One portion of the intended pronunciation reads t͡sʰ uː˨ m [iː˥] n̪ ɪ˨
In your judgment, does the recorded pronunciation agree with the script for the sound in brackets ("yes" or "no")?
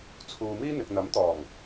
yes